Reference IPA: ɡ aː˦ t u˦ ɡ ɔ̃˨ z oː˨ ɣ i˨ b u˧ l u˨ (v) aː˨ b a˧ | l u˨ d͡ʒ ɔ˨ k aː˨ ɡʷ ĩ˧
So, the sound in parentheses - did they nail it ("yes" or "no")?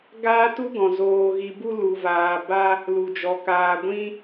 yes